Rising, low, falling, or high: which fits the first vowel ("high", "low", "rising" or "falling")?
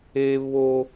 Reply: high